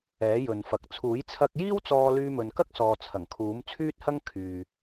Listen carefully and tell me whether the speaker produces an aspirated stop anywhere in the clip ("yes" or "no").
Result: yes